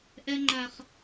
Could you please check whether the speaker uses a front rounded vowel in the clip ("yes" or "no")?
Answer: no